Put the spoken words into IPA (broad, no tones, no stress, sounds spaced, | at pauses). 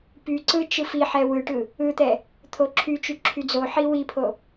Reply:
p y ǀ ɯ t͡ʃ ɯ f i ħ ɛ w ɯ ʈ ɯ | ɯ t̪ ɛ | t̪ʰ o ǁʰ y t͡ʃ y ǁʰ y d͡z o ħ i w i pʰ o